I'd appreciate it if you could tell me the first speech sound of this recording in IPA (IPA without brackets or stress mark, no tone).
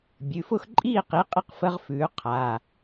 bʲ